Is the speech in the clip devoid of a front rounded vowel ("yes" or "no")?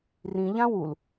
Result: yes